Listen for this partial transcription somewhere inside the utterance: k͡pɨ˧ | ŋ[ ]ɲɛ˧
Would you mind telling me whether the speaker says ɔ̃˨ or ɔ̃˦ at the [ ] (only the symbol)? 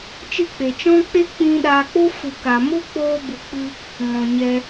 ɔ̃˨